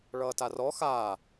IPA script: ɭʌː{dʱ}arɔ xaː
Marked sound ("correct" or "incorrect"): incorrect